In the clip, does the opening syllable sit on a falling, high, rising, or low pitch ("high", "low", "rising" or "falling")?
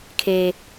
high